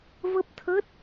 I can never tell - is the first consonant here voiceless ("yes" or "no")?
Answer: no